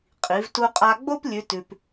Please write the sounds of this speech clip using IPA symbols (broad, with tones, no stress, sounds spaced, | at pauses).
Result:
qʼ i˩˧ v t u˧ qʼ a˧ ɡ͡b o˥ p lʲ ʉ˧˥ t ʉ˧ p